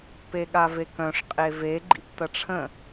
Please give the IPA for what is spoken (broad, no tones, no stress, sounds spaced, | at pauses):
p e ɠ a v e k œ̃ ʂ qʼ e v e ɡ͡ǃ ḭ p t ɐ ʈ͡ʂʰ ə̃